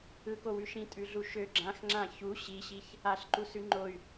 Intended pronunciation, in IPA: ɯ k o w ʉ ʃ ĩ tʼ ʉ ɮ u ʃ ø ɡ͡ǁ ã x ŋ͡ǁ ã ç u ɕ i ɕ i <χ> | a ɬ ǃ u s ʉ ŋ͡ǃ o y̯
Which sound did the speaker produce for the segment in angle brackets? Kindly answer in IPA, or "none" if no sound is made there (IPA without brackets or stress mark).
ç